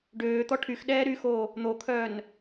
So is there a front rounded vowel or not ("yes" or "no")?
yes